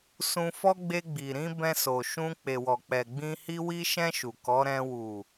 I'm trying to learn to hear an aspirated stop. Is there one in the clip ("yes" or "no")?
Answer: no